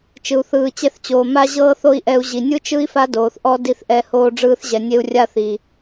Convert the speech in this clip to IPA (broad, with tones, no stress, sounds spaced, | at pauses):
t͡ʃ ɯ˨ u̯ θ ɯː˨ t͡ɕ ɛ˧ θ t͡ɕ oː˨ m a˦ ʑ ɤː˦ θ o˦ i̯ ʔ ɛ˧ u̯ ʑ i˨ nʲ ɯ˦ t͡ʃ ɯ˦ i̯ f a˦ d oː˨ θ ʔ ɔ˦ d i˧ θ ʔ ɛ˧ h oː˧ ɖ͡ʐ ɯː˧ θ ʑ ɛ˨ nʲ e˧ u̯ rʲ a˦ θ i˨